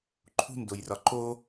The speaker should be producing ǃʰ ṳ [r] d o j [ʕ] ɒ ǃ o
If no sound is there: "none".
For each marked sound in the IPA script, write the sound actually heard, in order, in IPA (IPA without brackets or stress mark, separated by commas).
n, r